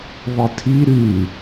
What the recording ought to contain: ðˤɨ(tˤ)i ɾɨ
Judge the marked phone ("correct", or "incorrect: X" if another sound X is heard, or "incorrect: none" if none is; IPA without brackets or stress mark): incorrect: tʰ